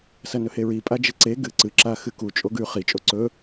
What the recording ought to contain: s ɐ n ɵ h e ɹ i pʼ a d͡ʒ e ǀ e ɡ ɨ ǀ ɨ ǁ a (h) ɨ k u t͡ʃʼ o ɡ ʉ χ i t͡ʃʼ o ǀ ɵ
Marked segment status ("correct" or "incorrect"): incorrect